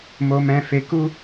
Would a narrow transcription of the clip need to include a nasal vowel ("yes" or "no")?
yes